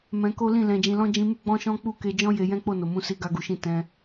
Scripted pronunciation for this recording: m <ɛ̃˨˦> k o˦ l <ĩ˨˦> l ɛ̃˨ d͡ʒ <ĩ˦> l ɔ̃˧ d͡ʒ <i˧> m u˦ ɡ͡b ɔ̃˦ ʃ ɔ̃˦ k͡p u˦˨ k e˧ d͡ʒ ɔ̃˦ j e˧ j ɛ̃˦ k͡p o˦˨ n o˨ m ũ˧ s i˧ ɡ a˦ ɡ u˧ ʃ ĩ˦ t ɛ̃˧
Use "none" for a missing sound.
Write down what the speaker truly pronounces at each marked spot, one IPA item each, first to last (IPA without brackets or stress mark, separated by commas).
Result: ɛ̃˧, ĩ˦˨, ĩ˨, ĩ˧